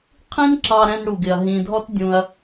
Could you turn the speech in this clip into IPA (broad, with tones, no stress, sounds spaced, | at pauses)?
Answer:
qʰ ĩ˦ n ǁ ɑ˧ ɾ ɛ̃˧ n ɽ u˨ ɡ ɪ˨ ɐ̯ ɦ ĩ˨ dʱ ɔ˦ t dʲ ũ˧ ɐ̯